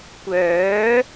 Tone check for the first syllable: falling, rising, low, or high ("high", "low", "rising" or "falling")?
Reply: rising